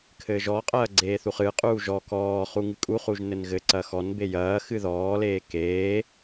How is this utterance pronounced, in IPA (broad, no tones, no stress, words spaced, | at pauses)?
kʰɘːʒɔqʼɐː ɡ͡ǀeːθuχɨqʼuː ʒɔ kɔː χuŋɨkʼuχuʒ nɘnɣɘǀɐ xɔnbe jɐː xɨðɔːleː keː